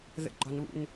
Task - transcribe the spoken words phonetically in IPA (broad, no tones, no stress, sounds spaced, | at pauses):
ð ə̰ ɡ͡ǃ ɒ n β ṵ n